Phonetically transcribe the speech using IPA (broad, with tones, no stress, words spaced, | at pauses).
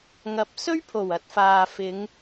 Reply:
ŋɐ˨˥p̚ sɵ˥ɥpʰo˨˩w ɐ˨˥t̚faː˨fɪ˨˧ŋ